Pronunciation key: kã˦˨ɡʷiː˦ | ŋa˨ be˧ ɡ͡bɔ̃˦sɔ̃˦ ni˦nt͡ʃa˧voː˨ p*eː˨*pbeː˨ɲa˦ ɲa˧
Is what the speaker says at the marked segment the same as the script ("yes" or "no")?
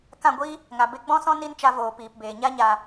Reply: no